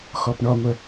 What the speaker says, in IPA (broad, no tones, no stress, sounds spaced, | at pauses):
x ɔ p ɳ ɔ ŋʷ œ